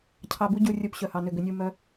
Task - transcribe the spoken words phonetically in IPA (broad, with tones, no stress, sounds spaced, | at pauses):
cʰ ɑ˨ b u˦ ɟ u˨ rʲ u˨ p ɕ œ˨ h ɑ˨ n ʏ˦˨ ɡ ʏ˨ nʲ u˦˨ m œ˦